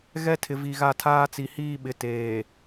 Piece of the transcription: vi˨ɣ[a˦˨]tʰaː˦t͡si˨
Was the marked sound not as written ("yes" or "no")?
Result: no